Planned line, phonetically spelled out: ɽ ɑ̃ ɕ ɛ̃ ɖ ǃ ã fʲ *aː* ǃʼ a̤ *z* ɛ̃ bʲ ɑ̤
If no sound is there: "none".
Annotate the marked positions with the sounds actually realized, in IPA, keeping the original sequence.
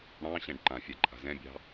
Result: a, z

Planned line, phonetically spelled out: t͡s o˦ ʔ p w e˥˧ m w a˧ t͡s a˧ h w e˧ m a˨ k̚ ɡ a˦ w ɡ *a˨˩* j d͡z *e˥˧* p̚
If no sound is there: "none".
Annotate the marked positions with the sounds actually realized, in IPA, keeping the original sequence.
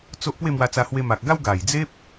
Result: a˨˩, e˦

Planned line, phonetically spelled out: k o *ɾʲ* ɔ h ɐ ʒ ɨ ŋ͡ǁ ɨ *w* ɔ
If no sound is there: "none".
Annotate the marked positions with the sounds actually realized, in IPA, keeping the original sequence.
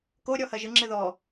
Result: ɾʲ, ð

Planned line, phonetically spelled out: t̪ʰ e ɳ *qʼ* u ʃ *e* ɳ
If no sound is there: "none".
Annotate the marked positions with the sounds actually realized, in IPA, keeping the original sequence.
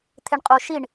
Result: qʼ, i

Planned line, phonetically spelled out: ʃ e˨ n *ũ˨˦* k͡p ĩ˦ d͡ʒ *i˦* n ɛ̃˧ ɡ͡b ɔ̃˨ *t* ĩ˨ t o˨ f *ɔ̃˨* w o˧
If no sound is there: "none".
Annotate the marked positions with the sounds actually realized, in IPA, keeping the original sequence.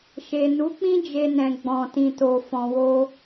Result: u˨˦, e˦, t, ɔ̃˨

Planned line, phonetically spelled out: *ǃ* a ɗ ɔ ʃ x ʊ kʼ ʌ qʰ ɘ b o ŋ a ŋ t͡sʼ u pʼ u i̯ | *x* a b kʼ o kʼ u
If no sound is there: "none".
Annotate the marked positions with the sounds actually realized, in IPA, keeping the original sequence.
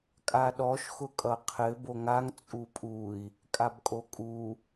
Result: kʼ, kʼ

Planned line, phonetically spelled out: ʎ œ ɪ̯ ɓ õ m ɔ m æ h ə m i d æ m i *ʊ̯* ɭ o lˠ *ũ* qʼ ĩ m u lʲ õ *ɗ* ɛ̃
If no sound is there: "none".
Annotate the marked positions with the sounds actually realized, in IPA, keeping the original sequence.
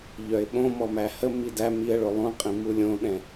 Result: ə̯, ũ, ɗ

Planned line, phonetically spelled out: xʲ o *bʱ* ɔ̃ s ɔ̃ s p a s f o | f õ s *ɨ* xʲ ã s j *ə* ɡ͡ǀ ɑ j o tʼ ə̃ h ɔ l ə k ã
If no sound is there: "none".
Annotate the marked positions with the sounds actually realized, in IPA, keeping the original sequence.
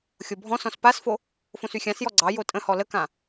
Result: bʱ, y, ɔ

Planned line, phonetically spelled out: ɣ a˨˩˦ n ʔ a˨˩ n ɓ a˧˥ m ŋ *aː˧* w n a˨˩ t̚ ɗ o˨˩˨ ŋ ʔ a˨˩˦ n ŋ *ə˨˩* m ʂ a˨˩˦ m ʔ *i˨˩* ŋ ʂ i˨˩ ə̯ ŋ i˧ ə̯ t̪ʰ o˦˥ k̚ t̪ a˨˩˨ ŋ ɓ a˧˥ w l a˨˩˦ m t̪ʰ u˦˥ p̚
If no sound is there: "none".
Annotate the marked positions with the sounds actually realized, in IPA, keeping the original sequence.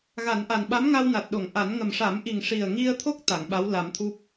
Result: a˧, ə˨˩, i˨˩

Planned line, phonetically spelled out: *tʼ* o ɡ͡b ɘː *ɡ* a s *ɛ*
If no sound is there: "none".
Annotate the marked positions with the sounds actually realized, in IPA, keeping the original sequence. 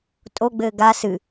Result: tʼ, ɡ, ɨ

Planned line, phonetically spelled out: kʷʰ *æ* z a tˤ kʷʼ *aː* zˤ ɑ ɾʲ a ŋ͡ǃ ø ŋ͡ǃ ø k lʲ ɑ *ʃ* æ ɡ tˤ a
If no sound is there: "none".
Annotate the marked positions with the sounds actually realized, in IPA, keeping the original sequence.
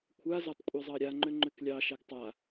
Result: a, a, ʃ

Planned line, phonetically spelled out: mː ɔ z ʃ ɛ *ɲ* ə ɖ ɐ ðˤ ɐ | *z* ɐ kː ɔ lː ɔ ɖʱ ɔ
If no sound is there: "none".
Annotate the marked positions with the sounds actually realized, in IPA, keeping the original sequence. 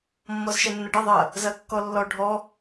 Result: nː, z

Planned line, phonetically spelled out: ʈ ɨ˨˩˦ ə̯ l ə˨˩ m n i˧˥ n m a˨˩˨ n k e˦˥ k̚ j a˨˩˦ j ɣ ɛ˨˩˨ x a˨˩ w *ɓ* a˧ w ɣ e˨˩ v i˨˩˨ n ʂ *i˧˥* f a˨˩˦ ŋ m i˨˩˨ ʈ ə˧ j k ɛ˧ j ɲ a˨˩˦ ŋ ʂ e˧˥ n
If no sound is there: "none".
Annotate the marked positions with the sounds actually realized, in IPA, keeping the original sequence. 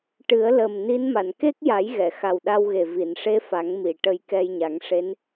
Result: ɗ, e˧˥

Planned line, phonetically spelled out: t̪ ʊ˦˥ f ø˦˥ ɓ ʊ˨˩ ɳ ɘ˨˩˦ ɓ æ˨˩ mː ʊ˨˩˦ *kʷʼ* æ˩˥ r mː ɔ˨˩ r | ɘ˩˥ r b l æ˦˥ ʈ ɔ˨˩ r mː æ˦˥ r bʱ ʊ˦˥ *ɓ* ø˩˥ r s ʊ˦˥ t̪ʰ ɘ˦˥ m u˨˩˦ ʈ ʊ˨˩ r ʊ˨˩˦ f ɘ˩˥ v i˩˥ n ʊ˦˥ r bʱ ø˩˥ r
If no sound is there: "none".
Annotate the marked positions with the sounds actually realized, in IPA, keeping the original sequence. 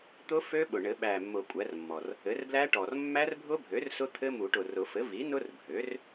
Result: kʷʼ, bʱ

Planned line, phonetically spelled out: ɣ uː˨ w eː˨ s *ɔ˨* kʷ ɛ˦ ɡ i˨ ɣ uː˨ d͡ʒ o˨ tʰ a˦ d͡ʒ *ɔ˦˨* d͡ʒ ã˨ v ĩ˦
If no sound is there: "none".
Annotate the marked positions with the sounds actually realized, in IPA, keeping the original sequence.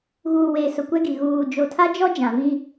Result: ʊ˨, ɔ˦

